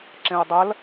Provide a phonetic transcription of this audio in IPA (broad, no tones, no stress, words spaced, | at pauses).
ǁẽo̯dˤɐl